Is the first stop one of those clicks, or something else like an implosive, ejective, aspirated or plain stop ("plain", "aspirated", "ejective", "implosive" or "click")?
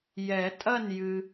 ejective